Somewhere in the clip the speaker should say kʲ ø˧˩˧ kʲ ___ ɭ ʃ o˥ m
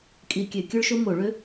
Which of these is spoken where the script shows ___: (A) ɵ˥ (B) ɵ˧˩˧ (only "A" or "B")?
A